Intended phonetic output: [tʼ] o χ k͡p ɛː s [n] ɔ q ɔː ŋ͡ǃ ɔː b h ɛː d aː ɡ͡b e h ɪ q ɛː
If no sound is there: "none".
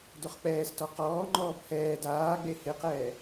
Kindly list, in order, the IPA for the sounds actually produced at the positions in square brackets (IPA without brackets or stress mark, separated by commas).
d, t